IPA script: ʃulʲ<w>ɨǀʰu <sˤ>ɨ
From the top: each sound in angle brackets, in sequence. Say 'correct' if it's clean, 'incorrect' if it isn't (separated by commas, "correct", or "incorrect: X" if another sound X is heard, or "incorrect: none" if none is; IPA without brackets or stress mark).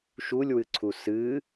correct, incorrect: s